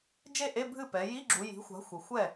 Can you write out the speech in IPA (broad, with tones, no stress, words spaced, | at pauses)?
d͡ʒe˥˩ ʔe˧˥˧ bʱɨ˥˩pɛ˩˧ ji˧˥˧ɡ͡ǁu˩˧ji̤˩˥xʷa̤˩˥ xʷe˩˧xʷɛ˥˩